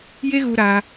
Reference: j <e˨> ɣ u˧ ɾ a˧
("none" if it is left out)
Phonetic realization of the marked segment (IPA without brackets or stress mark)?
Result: e˦